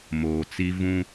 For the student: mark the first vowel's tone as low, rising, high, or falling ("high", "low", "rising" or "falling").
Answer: low